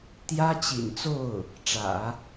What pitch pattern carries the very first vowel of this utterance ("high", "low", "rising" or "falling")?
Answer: high